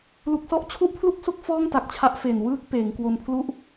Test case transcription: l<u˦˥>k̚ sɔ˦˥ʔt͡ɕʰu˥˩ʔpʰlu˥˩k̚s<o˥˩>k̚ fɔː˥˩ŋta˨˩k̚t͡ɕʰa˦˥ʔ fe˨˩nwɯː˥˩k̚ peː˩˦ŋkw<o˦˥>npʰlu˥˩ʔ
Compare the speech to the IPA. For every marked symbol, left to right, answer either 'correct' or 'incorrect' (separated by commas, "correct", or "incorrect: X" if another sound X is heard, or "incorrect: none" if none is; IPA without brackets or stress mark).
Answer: correct, correct, incorrect: o˧